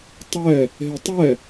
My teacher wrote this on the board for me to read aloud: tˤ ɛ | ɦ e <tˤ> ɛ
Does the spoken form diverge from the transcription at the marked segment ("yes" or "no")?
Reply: no